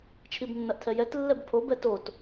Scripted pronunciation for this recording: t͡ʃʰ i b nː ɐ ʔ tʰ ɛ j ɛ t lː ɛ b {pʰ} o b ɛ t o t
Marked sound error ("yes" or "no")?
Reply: no